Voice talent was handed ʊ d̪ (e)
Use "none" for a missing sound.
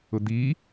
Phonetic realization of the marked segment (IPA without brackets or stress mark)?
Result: i